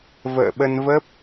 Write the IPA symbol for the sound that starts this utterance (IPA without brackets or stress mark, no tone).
v